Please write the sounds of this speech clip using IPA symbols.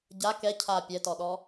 ɟa kɛ cʰa pʲɛtɔɗɔ

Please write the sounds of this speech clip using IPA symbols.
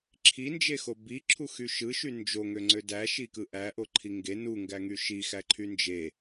ǁʰind͡ʒexo biǁʰuxy ʃɯʃy nd͡ʒoŋøŋ͡ǀø dæʃikɯ ʔæʔoǃʰi ŋɡe nuŋɡæŋy ʃixæǃʰy nd͡ʒe

